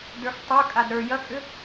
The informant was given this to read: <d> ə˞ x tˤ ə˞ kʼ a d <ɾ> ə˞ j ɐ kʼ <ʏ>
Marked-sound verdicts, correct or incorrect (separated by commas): correct, correct, correct